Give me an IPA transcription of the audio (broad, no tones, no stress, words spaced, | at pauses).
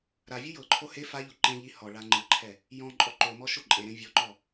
ɾavʲu jɤǃʰo he faʎo ǃẽʎi hɔɭa ŋ͡ǃɯǃʰɛ | jɔ̃ ǃʼɔǃomɔ ʃoǃʼeɾẽ vʲɔǃɔ